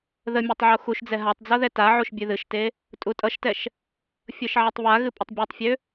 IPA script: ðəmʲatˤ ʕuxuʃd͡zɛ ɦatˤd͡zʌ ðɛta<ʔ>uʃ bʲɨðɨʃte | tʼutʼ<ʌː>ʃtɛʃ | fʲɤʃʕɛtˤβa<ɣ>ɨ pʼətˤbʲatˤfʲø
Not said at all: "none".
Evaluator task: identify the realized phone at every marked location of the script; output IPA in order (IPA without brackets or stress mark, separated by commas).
ʕ, ʌ, ɣ